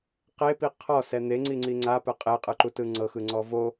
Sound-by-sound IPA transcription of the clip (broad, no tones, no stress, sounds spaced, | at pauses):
q e p i qʰ ɔ s ɛ n̪ e ŋ͡ǀ i ŋ͡ǀ i ŋ͡ǀ a p ɛ qʼ e qʼ ɯ ǃ u t ɯ ŋ͡ǀ ɤ x ɯ ŋ͡ǀ ɔ v o